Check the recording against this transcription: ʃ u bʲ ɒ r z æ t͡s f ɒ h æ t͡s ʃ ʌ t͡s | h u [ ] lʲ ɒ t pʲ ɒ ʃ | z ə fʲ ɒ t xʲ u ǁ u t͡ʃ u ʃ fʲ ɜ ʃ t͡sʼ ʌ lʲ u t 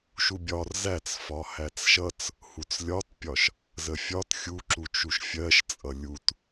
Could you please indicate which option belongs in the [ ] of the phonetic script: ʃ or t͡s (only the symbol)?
t͡s